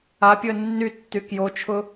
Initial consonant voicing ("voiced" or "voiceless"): voiceless